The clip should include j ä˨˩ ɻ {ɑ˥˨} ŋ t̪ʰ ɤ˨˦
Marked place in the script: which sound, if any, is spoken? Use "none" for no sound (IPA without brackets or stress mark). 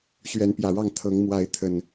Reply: ɑ˥˨